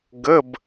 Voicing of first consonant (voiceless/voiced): voiced